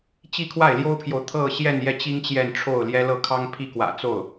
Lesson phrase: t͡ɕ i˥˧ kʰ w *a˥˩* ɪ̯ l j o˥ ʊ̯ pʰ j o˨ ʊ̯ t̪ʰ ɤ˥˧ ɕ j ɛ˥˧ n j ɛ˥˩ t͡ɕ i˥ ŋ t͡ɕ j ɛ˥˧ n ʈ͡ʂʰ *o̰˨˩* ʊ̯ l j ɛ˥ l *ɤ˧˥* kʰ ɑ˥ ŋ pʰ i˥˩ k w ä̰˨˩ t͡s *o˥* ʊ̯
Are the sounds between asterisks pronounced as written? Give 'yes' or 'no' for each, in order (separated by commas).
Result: yes, no, no, no